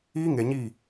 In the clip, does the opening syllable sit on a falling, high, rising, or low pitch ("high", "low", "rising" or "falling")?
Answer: high